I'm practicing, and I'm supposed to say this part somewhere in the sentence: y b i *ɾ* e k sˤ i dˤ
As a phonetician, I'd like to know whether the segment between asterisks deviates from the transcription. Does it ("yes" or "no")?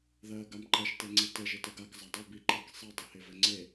yes